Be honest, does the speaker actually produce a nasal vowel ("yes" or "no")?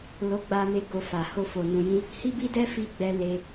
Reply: yes